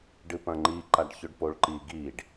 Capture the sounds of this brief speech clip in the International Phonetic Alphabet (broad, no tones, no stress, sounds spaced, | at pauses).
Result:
ɖ ɨ p ɐ̃ ŋ͡ǃ i ǃ a ɖ ç ɵ ɖ p o ɭ ǃ i ɡ i ɖ